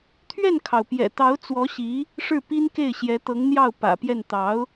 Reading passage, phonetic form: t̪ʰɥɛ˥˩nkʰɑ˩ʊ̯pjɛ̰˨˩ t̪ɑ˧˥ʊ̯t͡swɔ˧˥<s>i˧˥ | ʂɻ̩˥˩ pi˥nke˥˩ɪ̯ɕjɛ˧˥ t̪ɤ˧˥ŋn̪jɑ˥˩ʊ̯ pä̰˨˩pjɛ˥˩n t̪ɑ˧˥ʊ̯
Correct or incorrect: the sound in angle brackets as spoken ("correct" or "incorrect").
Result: incorrect